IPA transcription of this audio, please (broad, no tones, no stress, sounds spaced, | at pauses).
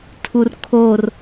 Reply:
tʰ u r kʰ o r